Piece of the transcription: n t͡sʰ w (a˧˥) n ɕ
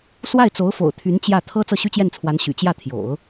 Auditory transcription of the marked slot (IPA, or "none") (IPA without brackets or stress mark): a˧˥